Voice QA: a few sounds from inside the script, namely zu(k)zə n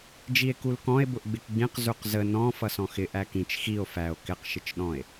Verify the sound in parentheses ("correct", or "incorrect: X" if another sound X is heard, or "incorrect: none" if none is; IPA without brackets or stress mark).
incorrect: q